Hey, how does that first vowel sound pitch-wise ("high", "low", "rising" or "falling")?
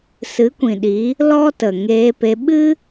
rising